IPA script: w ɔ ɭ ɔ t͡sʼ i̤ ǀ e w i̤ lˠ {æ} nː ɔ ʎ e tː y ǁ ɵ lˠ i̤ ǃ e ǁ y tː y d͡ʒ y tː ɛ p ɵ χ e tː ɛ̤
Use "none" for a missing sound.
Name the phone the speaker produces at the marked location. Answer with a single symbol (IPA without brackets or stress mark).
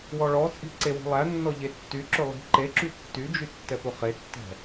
æ